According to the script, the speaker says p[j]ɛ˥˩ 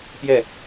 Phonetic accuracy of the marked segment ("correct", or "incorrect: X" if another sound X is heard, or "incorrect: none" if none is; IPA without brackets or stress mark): correct